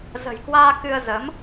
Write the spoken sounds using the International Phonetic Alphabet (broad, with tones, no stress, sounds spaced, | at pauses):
z ə̤˨˩ j k w aː˧ k ɨ˧ ə̯ z ə˨˦ m